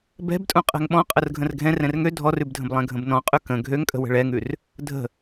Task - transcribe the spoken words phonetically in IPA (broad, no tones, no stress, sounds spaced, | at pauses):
b ɛ̤ b tʼ ũ qʼ ɛ̤ ŋ ɓ ɔ̃ qʼ ə r ɡʱ ə̃ r ɡʱ ɛ̃ r ɛ̃ r ŋ ø dʱ ɔ r ʉ b dʱ ə̃ b lˠ ɛ̃ ɡʱ ə̃ b n ɔ̃ qʼ ʉ k ə̃ ɡʱ ø ŋ kʼ ə̤ w ə̤ ɭ ɛ ŋ ʉ r | dʱ ə̤